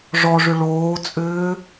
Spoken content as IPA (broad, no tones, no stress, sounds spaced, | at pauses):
ʐ ɔ ʐ ʏ ɭ oː t͡sʼ ʏː